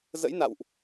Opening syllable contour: rising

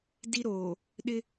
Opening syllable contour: high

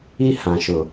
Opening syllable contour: high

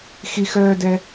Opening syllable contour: high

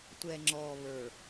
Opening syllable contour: low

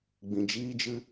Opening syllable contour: low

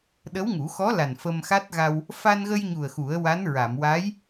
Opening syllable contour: rising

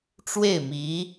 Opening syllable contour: falling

